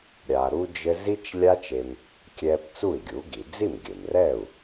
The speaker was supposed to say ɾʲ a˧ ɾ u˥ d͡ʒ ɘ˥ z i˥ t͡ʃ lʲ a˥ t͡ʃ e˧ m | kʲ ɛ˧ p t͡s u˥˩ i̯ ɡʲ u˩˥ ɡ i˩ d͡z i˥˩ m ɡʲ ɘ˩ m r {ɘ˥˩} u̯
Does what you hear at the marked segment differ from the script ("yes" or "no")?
yes